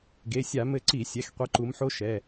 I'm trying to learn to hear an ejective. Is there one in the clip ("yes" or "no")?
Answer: no